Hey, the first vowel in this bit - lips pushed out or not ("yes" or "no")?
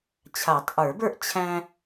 no